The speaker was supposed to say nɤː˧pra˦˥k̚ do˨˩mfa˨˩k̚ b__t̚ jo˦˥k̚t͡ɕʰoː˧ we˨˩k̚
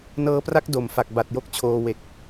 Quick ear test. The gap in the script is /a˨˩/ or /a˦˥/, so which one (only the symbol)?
a˨˩